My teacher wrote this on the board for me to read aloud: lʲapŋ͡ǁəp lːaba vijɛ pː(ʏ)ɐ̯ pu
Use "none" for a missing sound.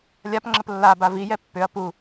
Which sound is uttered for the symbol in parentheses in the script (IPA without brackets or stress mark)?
ʏ